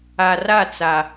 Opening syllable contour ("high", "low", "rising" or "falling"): low